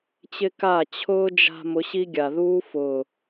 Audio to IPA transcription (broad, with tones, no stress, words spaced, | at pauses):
t͡ɕɪ˦ka˦˨ t͡ɕʰʊː˦d͡ʒa̤˧ mʊ˨˦ɕi˦ɡʲa˨ðuː˦ fʊː˨